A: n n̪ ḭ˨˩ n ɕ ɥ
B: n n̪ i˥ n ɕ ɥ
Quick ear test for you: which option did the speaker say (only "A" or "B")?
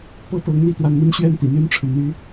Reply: B